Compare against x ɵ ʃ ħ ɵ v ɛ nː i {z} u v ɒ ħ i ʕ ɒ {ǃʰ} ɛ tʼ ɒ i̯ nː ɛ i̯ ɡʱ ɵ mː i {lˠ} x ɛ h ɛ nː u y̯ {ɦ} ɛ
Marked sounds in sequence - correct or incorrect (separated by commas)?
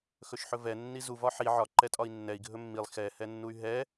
correct, incorrect, correct, correct